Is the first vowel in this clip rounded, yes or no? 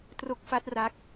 yes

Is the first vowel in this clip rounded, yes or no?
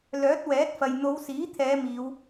yes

